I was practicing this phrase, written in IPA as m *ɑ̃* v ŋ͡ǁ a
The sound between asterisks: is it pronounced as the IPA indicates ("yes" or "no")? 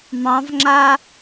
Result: yes